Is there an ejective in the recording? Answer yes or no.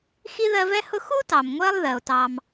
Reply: no